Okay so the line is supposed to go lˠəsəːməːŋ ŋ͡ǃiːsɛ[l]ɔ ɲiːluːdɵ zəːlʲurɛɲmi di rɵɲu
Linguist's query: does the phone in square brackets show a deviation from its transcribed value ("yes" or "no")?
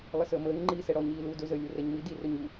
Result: yes